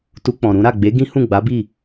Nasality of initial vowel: oral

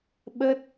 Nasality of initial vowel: oral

